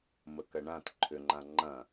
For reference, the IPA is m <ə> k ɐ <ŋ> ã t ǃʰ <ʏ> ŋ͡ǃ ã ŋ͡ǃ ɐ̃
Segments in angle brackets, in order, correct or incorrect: correct, incorrect: ɳ, correct

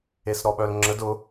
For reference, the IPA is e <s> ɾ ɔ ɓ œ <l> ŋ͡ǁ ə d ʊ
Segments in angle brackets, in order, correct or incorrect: correct, correct

